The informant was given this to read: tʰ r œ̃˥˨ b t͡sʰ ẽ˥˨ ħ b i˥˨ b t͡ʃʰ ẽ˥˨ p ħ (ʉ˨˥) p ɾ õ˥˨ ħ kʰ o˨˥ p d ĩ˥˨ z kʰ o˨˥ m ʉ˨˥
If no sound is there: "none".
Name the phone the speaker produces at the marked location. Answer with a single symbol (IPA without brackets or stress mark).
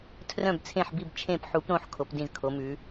u˨˥